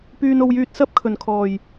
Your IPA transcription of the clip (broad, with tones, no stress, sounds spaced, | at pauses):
p yː˧ n o˧ w j yː˧ t̚ s ɐ˥ p̚ kʰ ɵ˨˩ n kʰ ɔː˨˩ j